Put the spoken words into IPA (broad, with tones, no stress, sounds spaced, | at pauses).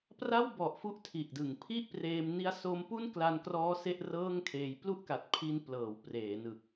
p r a˥˩ w b ɔ˨˩ ʔ f u˦˥ ʔ tʰ i˨˩ ʔ d ɯ˨˩ ŋ pʰ i˥˩ ʔ p r eː˧ m n i˦˥ a̯ s o˦˥ m p u˥˩ n k l a˧ n k r ɔː˦˥ s e˥˩ ʔ r ɤː˥˩ ŋ kʰ eː˧ j p l u˥˩ ʔ k a˨˩ t̚ pʰ i˧ n p l ɤː˩˦ w p r eː˩˦ n ɯ˨˩ k̚